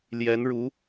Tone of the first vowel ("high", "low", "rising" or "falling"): rising